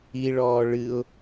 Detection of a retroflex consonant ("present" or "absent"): present